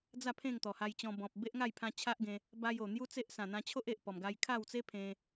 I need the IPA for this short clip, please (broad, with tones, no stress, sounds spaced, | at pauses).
d͡z a˥˧ pʰ ẽ˥˧ ŋ t̪ ɔ˨˩ h a˧ j t͡ɕ ɔ̃˧ b ɔ̃˨ p̚ b e˦ ʔ ŋ a˥˧ j pʰ ã˧ t͡ɕʰ a˦ ʔ ɡ ẽ˧ | b a˧ j o˨˩ n̪ j u˦ t͡s e˦ ʔ s ã˨˩ n̪ ã˧ t͡ɕʰ o˦ ʔ e˨ ʔ p ɔ˨˩ m ɡ a˧ j kʰ a˥˧ w t͡s e˦ pʰ ẽ˧